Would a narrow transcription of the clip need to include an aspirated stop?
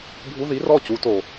no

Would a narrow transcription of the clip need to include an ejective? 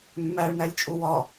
yes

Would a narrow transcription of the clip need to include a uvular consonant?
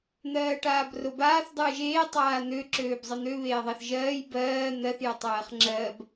yes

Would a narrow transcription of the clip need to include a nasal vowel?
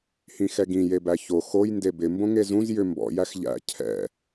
yes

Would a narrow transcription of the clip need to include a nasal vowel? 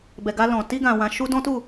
yes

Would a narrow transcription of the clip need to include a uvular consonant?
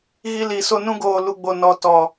no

